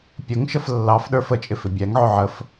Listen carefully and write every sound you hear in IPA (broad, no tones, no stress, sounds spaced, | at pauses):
pʲ ʊ ŋ ʃ ə f lː ɑ f ɗ ə˞ f ə t͡ʃʼ ɪ f ɪ bʲ æ ŋ ʕ ʊ ʕ ə f